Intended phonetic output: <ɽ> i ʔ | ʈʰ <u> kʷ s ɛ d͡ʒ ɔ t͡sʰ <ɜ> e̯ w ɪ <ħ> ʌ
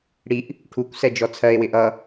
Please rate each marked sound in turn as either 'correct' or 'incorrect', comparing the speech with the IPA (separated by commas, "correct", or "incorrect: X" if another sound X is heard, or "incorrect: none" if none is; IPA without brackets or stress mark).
correct, correct, correct, incorrect: ʔ